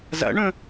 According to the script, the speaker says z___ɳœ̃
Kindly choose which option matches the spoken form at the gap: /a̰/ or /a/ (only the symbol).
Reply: a̰